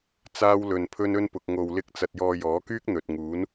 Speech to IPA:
t͡s aː˥ w l ɵ˧ n pʰ ɵ˥ n ɵ˥ n p ʊ˧ k̚ ŋ o˧ w l ɪ˥ k̚ t͡s ɐ˧ t̚ j ɔː˧ j ɔː˨˥ k yː˥ k̚ n̪ ɵ˨ t̚ ŋ uː˨˥ n

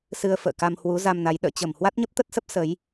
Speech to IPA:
s ɨ˧ ə̯ f ə̰ː˧˨ k a˧ m h w u˨˦ z a˧ m n a˨˦ j ɗ ə̰ː˧˨ t͡ɕ ə˧˩ m h w a˦˥ t̚ ɲ ə˦˥ p̚ t̪ ə˦˥ t̚ s ə˦˥ p̚ s ə˨˦ j

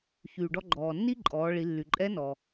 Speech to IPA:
ç yː˩ ɖ ɔ˧ ɡ͡ǃ ɔː˩ nː iː˥ ǃʼ ɔː˩˧ ɭ i˩˧ lː y˩ ǃʼ ɛ˧˥ n ɔː˩

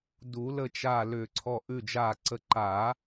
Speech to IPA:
d u˨˩˦ l ə˧˩ t͡ʃ a˧˩ l ʏː˧˩ ǀʰ ɔ˧˩ ʔ ʉ˧˩ d͡ʒ aː˧˩ ǀ ə˧˩ ǃ a˨˩˦

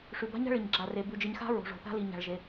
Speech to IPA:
ʂ ʉ˨ b a̤˦ ɲ a̤˦ ɭ i˨ ɲ ɡ͡ǁ a˨ r e˨ b ʉ˨ d͡ʒ ɨ˨ ɲ x a̤˦ ɹ o̤˨ ʐ o̤˨ θ a̤˦ l i˨ ɲ a̤˨ ɭ ʒ e˨

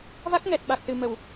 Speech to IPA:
v a˦˥ k̚ ŋ ɛ˨˩ t̚ ɓ a˨˩ k̚ s ɨ˨˩ m ə˨˩˨ w

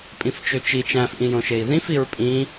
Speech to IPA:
pʼ ĩ f t͡ʃ ø t͡ʃ i t͡ʃ æ̃ f ʔ ĩ j õ ʃ e i̯ ð ĩ f i ɹ pʼ ĩ

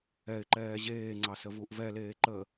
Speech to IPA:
ɛ ɪ̯ ǃ ɛː ʑ eː ŋ͡ǀ ɑ s ə v u ʔ v ɛ l eː ǃ əː

